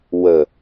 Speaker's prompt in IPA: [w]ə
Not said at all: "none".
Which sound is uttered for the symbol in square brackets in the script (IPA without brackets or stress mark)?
w